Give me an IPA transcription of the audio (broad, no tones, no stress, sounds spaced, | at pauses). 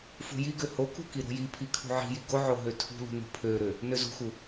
f ṳ j i ɡ ø h o k ṳ k i ɾ o̤ j i pʰ i kʰ ṳ ʕ i̤ j i ɡ o ʕ o ɦ ø tʰ ṳ l ṳ n ṳ pʰ ø ɾ ø | n ø z ṳ x u